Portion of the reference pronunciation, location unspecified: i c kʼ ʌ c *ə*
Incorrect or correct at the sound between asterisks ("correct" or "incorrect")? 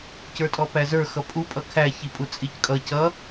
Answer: incorrect